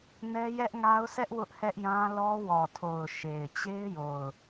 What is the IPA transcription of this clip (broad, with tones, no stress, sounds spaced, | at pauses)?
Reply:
n ɛ˦ j ɛ˦ ʔ ŋ a˦ ʊ̯ sʰ ɛ˦ ʔ w ʊ˦ ʔ h ɛ˦ ʔ j ã˦ l ɔ˦ w ɔ˨ tʰ o˨ ʊ̯ ʃ e˨ ɪ̯ t͡ɕ e˦ ɪ̯ j o˨ ʊ̯